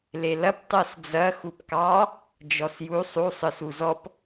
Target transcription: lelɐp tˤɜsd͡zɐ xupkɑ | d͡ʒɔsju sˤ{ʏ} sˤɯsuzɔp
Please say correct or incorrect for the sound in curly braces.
incorrect: u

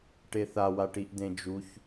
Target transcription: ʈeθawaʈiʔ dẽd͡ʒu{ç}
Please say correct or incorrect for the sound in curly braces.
correct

